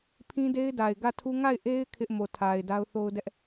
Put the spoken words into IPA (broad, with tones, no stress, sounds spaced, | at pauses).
pʰ ĩ˦ d e˦ ɪ̯ d a˨ ɪ̯ ɡ ä˦˨ tʰ u˦ ŋ a˦˨ ɪ̯ ʔ e˦ ɪ̯ kʰ ɪ˦ ʔ m o˨ tʰ a˨ ɪ̯ d a˦ ʊ̯ θ o˦ ʊ̯ d ɛ˦ ʔ